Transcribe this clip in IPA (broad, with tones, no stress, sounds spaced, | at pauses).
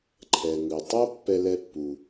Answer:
ǃʰ ɛ˩ ŋ ɯ˩ tˤ o˥ pː ɛ˥ l ɛ˥ pː u˩